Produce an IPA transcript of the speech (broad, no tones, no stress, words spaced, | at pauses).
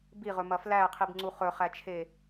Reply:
biʁɵmɐ flæqʰibŋ͡ǀu χɵχæt͡ʃʰe